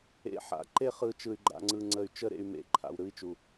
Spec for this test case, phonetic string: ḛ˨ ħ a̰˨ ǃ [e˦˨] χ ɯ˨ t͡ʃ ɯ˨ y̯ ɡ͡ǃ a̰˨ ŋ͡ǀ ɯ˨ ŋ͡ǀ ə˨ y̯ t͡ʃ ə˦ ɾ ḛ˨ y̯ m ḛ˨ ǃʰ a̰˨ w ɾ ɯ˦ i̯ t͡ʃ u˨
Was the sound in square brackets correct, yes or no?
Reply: yes